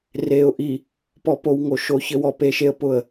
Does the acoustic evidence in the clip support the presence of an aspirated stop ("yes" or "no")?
no